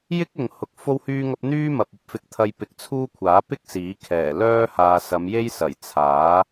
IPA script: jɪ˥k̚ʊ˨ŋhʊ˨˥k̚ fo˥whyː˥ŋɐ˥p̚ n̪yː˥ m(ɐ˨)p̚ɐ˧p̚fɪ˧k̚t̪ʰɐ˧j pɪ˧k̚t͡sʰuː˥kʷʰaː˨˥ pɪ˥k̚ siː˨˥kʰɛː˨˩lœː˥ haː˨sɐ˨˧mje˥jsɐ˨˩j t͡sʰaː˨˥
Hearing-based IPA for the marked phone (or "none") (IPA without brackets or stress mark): ɐ˨